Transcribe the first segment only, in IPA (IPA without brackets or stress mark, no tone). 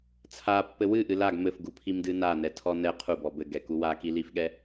t͡sʰ